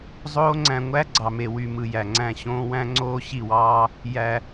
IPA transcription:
zˤ oː˧ ŋ͡ǀ æ̃˨ ŋʷ æ˦ ɡ͡ǀ ɑ˨ m e˨ w y˨ m ɯ˨ j æ˨ ŋ͡ǀ æ̃˦˨ ɕ õː˦ w æ̃˦ ŋ͡ǀ oː˦ ɕ i˦˨ w ɑː˦ | j æ˨

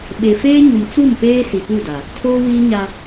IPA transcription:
ɓ e˨ f eː˦ ɲ u˨ m t͡s u˦˨ m p eː˦ s i˨ p u˦˨ d a˨ | tʰ oː˦ w iː˦ ɲ a˦

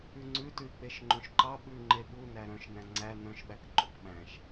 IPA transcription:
ʉ ŋ͡ǀ ʉ t ʉ i̯ k͡p e ʃ ŋ͡ǃ õ ʃ ǃ ɑ ɓ ʉ ŋ͡ǃ e ɓ u n æ ɾ œ̃ ʃ n æ̃ ŋ͡ǀ æ n œ̃ ʃ ɓ æ k ǃ o k ɓ æ̃ ʃ

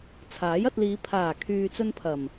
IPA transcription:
t͡sʰ aː˨˥ j ɐ˧ t̚ l iː˨˧ pʰ aː˨˩ kʰ yː˨ t͡s ɵ˧ n pʰ ɐ˨˩ m

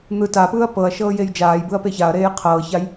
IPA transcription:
n̪ ɯ t a p ɯː ɐ̯ p ɤ ɐ̯ ʃ ɤː j e j d͡ʒ aː j b ɯ ɐ̯ p e ç a ɐ̯ ɾ eː j qʰ ɤː ç a j

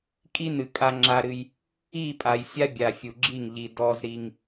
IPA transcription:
kʼ i˦ n ɨ˨ kʼ a˦ ŋ͡ǁ a˦ ɾ ɨ˦ j | i˦˨ pʼ a˨ j sʲ a˦ bʲ a˨ fʲ u˨ ɡ͡ǁ i˦˨ ŋ ʎ i˦ d ɔ˦ z ɾ i˦ ŋ

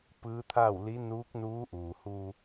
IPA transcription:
p ɯː˧˥ t̪ʰ a˥˨ w l i˧˥ n uː˧˥ k̚ n uː˧˥ ʔ uː˩ h uː˧

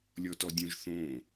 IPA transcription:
lʲ ɔ t ɔ dʲ õ ʒ θ õ

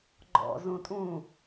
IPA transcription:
ɡ͡ǃ ɔ̰ z ũ tʼ ũ

